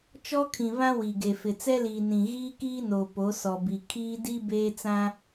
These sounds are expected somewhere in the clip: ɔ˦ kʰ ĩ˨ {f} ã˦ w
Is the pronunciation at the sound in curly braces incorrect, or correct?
incorrect